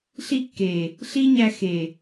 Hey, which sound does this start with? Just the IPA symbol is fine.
ɬ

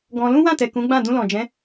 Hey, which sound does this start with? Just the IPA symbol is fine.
ɡ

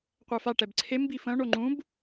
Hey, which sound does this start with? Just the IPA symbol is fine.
qʷ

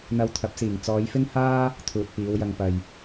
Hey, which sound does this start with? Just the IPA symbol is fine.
n̪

